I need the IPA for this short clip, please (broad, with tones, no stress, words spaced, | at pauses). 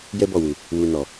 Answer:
jɛ˦bɔ˦˨wu˨ | wu˨nɔ˨